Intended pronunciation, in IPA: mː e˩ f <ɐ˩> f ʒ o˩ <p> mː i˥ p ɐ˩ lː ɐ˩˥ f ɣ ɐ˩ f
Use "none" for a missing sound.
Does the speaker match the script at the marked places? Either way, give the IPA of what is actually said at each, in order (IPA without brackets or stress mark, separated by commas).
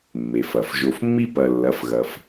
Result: ɐ˩, f